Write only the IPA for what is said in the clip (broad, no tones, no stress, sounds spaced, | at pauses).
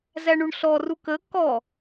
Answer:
z æ ɳ u ɳ ɬ ɔ r u k ə k ɔ